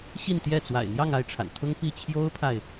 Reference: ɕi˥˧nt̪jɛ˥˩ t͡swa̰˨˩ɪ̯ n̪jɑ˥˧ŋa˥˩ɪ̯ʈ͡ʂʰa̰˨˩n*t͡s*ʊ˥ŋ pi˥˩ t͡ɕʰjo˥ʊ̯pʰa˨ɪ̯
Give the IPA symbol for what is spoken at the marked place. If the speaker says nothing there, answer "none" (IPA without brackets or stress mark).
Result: t̪ʰ